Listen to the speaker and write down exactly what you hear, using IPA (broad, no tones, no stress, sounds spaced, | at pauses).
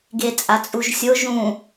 ɡ e t͡sʼ a t͡sʼ u ʒ sʲ o ʒ ũ